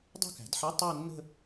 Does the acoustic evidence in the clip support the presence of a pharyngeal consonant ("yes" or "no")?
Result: yes